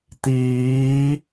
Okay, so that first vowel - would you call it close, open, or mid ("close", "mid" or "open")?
close